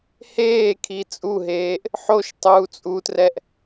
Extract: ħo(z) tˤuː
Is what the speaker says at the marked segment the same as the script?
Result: no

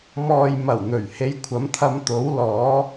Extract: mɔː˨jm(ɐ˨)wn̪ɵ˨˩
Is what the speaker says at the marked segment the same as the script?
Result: no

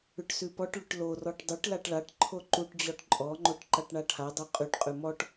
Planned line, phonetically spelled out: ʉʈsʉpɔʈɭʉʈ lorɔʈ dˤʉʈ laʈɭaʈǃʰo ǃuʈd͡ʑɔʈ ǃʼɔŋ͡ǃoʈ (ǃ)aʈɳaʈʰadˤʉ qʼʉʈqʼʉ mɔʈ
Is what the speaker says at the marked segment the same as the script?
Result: yes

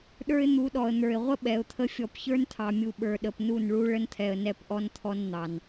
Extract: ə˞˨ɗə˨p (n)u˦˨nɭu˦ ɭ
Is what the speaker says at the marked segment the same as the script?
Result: yes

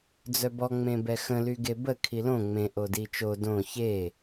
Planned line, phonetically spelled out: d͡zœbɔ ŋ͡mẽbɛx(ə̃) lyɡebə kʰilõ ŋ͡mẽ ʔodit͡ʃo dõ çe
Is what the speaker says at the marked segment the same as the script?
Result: yes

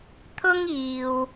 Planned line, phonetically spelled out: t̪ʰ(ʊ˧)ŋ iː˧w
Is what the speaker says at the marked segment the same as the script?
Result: no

